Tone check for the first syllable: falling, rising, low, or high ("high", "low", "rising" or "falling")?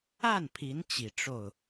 falling